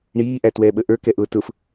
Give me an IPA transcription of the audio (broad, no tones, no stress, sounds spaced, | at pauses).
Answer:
ɳ iː ʔ æ t w ɛː ɓ ə ʔ ə˞ k ɛ ʔ ʊː t ʊ f